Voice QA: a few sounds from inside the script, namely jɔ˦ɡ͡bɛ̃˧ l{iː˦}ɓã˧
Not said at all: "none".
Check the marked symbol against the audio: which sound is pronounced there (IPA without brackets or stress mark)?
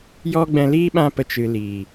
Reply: iː˦